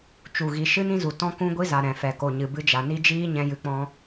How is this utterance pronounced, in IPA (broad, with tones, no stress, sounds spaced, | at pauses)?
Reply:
t͡ʃ u˨ ɣ i˨ ʃ ɨ˦ n ĩ˦ z u˨ t ɔ̃˧ k ũ˧ ɡʷ i˧ z a˨ ɾ ɛ̃˨ f ɛ˨ k o˨ ɲ ɨ˨ b ɨ˧ d͡ʒ a˨ n i˦ d͡ʒ iː˦ ɲ ɛ̃˦ j ɨ˧ k͡p ɔ̃˦